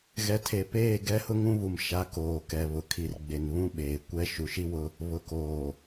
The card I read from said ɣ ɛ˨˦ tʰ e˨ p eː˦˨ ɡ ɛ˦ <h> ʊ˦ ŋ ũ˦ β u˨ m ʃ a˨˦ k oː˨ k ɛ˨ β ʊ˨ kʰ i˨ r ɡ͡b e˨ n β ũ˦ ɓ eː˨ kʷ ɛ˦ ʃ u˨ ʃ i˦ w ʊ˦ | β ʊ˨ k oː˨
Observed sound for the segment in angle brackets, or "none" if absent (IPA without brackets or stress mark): h